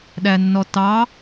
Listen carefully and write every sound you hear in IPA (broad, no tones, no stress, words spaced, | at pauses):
ɗænːɔtɑ